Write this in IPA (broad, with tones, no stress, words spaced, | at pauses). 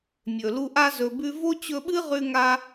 mʲɵ˨lu˦ʔa˥ zɵ˦bʉ˥ vo˥t͡ɕɵ˦ɓɨ˥ʁʉ˦ ŋa˥